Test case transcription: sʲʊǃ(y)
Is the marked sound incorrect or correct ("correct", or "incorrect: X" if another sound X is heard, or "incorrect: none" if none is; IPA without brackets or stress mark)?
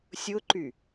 correct